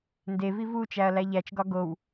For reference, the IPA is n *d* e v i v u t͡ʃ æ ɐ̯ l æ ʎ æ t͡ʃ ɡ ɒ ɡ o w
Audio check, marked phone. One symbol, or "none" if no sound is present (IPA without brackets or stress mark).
d